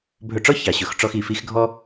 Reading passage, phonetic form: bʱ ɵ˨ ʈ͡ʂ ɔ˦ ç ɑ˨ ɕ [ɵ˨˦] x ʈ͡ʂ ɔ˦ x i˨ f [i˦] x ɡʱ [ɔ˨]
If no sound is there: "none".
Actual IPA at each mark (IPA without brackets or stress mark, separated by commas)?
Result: ɵ˨˦, i˦, ɔ˦